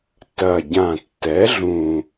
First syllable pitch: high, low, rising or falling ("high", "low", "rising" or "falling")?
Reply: low